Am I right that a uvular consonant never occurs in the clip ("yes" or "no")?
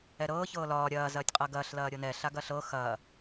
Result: no